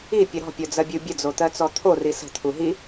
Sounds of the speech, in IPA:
ipʲə ɾɔ̤pʲɔd͡zɜbʲu bʲəd͡zot̪ɜt͡sɔ t̪ʰori sə̤t̪ʰu ɦi

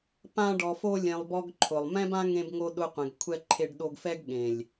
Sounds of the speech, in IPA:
pã˧ɖɔ˨fo˧lʲẽ˨lˠ bɔ˧ɡǃʰʊ˨lˠmɛ̃˦bã˦ ŋẽ˧b ŋo˧ ɗʊ˧qʷɛ̃˨ɡ kʷʰɛ˧ǃʰe˧ɖ ɗo˧ɡfɛ˦ɡ ɠẽ˨lʲ

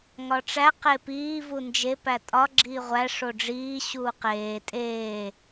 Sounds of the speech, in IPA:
ŋɒʈ͡ʂæ qepiː vund͡ʒe pætʼɒ ɡ͡ǁiːʁʷæ ʂoɖ͡ʐiː ɕuːqeː tʼeː

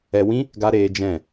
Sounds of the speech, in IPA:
ɛ˧wĩ˦ | ɡa˦ ɾeː˦ d͡ʒɛ̃˦˨

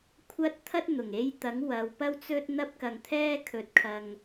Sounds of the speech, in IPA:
kʷʰɐ˥t̚ t̪ʰɐ˥t̚n̪ʊ˨˩ŋe˧jt̪ɐ˨˥ŋ wɐ˨wpɐ˥wt͡sɵ˥t̚ n̪ɐ˥p̚kɐ˨ŋt̪ʰɛː˥ kʰɵ˨˥t̚kʰɐ˨ŋ

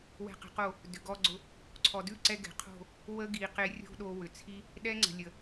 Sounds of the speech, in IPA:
wɛ̤˧qə̤˨˦qo˦˨ | dʏ˨ɡɔ˧ɡ͡ǀʊ˧ | ǀʰɔ˨dʉ˦˨ǀɛ˧ ɡɛ̤˨qʰo̤˦˨ | wə˦ɡi˨qe˧ rʲo̤˦ɗo˧ wʏ˨t͡sʰi˦ | ɗɛ˦ŋ͡ǀə̤˨lʲə˨

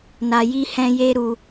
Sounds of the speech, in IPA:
na˧ji˦hɛ̃˦je˦ ɾu˧

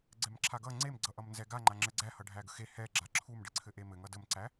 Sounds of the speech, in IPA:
ɡ͡ǀɛmǁʰaɡʌ ŋ͡ǀem ɡ͡ǀʌʔʌmnzɛɡa ŋ͡ǃaŋ͡ǁɘɡ͡ǀæhʌ ɖʱæɡəxe hɛ ɡ͡ǁaǁʰumɖɘ ǀʰɘʔemɘ ŋʌdəmǀæ

